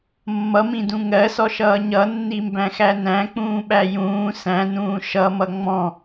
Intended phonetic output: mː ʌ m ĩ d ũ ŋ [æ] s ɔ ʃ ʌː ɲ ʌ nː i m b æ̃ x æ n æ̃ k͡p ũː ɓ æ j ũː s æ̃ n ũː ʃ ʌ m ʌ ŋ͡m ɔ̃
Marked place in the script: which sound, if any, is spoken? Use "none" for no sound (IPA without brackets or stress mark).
ɜ